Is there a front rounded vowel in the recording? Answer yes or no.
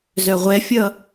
yes